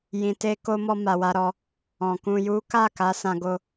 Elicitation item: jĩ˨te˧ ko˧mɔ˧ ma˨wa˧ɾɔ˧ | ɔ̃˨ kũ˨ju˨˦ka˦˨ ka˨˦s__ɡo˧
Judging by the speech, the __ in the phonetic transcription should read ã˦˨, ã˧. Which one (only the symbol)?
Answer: ã˧